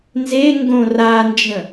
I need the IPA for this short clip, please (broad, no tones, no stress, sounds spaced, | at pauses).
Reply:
n z e ŋ ɡ õ r a n d͡ʒ ə̃